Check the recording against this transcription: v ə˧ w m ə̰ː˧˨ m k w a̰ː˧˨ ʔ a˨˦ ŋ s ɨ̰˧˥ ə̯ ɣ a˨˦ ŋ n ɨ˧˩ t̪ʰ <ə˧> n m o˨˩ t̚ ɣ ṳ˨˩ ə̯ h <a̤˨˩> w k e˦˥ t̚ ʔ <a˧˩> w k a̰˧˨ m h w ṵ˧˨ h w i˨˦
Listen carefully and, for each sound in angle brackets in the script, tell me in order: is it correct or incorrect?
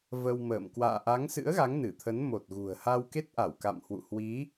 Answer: incorrect: ə˨˦, incorrect: a˧, correct

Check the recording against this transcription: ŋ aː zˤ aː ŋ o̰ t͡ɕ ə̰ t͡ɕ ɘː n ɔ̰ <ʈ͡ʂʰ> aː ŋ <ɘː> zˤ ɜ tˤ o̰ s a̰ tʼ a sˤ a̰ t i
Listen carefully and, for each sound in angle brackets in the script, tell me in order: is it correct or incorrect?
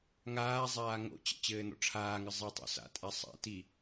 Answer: correct, incorrect: ɘ

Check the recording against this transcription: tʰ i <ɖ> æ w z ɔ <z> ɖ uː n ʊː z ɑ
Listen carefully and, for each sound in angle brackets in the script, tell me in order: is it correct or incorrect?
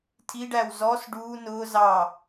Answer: correct, incorrect: s

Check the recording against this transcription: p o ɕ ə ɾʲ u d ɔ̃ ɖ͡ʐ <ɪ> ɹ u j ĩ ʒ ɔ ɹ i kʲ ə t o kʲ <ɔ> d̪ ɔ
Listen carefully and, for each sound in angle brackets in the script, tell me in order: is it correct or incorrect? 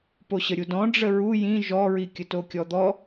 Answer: incorrect: ə, correct

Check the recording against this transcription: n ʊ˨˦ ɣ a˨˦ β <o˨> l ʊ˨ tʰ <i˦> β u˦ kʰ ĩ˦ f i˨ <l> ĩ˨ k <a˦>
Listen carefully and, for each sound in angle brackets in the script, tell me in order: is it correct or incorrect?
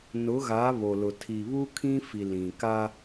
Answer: correct, incorrect: i˨, correct, correct

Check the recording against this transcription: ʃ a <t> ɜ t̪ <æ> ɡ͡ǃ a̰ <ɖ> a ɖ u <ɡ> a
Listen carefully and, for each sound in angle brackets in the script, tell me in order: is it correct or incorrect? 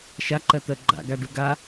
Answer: incorrect: ǃ, incorrect: ɜ, incorrect: ɡ, correct

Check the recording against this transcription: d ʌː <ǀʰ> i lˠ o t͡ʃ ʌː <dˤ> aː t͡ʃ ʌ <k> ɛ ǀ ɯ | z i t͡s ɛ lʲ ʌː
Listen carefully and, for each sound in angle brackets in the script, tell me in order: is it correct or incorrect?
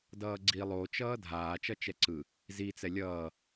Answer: incorrect: ɡ͡ǀ, incorrect: dʱ, incorrect: t͡ʃ

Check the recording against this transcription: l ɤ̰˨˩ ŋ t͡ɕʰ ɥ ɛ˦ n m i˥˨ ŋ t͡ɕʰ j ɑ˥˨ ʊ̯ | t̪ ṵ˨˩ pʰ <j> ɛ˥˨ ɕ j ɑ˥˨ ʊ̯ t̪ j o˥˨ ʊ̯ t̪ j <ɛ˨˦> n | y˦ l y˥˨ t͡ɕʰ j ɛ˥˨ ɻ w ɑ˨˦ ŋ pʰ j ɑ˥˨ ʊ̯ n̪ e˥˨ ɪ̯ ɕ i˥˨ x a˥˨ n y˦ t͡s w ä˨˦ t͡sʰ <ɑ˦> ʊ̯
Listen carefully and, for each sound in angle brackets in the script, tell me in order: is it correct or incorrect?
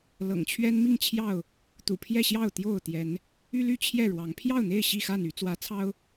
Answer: correct, correct, correct

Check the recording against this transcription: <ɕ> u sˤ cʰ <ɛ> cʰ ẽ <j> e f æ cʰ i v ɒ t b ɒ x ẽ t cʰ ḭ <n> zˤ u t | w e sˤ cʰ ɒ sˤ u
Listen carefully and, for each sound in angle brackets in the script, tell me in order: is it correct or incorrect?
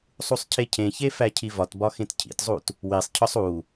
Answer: incorrect: sˤ, incorrect: e, incorrect: ç, incorrect: t

